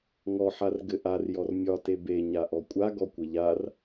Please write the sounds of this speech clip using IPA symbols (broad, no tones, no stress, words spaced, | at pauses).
ŋɔħar ɡɘʔar jɔrmʲɒte beɲaʔɔ kʷʼaɡɔkʷɘ ʎar